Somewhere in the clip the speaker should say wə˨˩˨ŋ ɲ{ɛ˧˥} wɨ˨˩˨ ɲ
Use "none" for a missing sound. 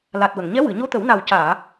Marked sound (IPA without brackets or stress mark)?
ɛ˧˥